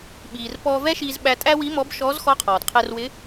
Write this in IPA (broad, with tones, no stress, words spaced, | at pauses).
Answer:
ɓiː˩r pɔː˧vɛ˥ʃiː˧zɓæ˧ tʼæ˥wi˧˥mɔ˧˥b ʃɔː˧˥zxɔ˧˥qʰɔː˩d qʰɛ˧rwɪ˧˥